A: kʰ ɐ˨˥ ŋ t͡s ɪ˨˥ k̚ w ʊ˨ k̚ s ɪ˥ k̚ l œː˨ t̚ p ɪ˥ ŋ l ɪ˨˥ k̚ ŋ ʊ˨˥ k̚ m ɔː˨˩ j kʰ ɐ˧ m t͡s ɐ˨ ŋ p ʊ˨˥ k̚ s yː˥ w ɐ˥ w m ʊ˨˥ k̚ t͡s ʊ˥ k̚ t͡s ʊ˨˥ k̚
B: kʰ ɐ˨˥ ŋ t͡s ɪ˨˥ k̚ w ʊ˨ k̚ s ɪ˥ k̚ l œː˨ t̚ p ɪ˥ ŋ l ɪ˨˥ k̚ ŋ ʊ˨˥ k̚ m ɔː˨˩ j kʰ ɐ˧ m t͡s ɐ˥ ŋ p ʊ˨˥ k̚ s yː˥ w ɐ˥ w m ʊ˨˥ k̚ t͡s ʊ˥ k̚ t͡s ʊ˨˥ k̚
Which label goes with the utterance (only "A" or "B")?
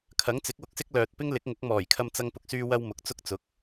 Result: B